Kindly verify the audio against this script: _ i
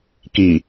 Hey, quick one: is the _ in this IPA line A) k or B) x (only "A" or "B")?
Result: A